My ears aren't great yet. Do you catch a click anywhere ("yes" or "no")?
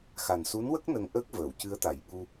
no